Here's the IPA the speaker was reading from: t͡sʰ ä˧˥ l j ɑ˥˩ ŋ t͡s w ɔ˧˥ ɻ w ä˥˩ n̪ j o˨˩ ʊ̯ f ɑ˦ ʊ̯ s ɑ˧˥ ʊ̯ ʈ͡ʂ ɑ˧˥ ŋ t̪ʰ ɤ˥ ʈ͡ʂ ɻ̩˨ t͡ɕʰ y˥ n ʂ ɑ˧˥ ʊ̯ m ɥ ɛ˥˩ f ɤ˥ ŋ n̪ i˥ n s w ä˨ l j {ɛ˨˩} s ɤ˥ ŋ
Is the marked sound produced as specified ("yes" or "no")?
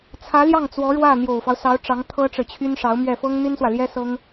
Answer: no